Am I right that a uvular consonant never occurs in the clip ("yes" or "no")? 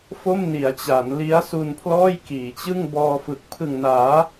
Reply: yes